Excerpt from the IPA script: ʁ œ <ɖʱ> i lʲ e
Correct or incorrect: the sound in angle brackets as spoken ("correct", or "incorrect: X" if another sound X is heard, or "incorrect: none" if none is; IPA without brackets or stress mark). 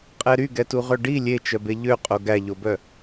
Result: incorrect: ɖ